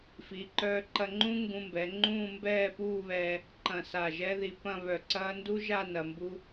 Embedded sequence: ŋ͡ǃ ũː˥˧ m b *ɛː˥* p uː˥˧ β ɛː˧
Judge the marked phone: incorrect: ɛː˥˧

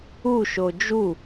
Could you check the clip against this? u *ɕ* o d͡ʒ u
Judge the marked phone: incorrect: ʃ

